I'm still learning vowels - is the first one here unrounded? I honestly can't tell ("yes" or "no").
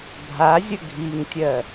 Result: yes